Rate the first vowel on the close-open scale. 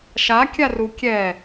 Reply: open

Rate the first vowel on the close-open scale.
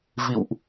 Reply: close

